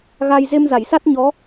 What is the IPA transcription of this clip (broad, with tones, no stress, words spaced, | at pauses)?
ɣa˧j ze˧mza˧˩jsa˦˥t̚ ɲɔ˨˦